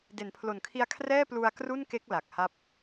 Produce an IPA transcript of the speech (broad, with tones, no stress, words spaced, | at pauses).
de˩˦npʰlo˨˩nkʰi˧a̯kʰrɛː˥˩ plu˧a̯kru˥˩nke˦˥k̚ la˨˩k̚ha˦˥p̚